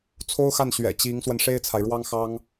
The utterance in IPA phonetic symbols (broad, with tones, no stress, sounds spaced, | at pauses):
t͡sʰ o˥ ʊ̯ x a˥˩ n ɕ ɥ ɛ̰˨˩ t͡ɕ i˧˥ ŋ s w ə˧ n ʂ e˥ ɪ̯ t͡sʰ a˨ ɪ̯ ɻ w ɑ˥ ŋ x ɑ˥ ŋ